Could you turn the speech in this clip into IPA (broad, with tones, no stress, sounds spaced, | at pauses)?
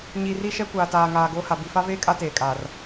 ɲ i˨ r i˦ ʃ ɛ˦ kʷ aː˨ t aː˨ ŋ aː˨ ɡ oː˦ h a˨ b i˨ f a˦ v eː˦ kʼ a˦ t eː˨ kʼ aː˨ r